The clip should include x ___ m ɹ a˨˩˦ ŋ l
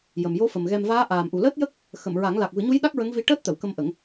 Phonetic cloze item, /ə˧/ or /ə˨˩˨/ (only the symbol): ə˨˩˨